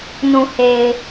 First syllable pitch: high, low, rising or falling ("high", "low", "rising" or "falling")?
low